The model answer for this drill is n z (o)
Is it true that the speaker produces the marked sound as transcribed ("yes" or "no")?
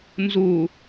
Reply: no